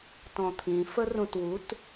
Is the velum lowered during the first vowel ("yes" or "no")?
yes